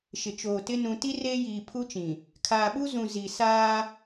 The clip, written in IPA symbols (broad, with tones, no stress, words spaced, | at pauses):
ʃɪ˨t͡ʃoː˨tɪ˦ nũ˨ti˦ reː˦jiː˨ pʰu˦t͡ʃĩ˨ | kʰaː˨ɓu˦zũ˨ zi˨saː˦